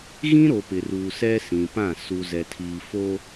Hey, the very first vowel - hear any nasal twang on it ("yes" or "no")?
yes